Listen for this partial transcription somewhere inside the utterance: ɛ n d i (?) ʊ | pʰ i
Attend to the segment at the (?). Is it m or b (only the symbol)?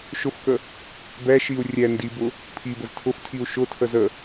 b